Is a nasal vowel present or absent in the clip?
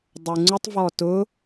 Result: absent